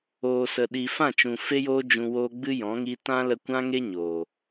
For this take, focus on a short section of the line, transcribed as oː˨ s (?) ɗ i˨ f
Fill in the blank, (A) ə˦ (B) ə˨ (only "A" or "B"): B